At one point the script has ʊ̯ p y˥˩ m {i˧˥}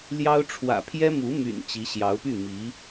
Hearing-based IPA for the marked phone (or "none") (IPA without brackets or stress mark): i˧˥